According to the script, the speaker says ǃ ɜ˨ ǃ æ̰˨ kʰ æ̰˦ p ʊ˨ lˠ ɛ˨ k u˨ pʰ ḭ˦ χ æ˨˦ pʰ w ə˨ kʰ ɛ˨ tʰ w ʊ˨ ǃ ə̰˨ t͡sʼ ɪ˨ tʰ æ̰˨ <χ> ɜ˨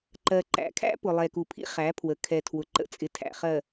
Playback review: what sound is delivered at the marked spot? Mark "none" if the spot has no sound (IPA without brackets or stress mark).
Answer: χ